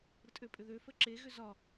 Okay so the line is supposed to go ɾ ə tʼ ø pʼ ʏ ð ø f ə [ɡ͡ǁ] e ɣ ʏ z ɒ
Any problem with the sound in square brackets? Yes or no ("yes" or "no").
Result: yes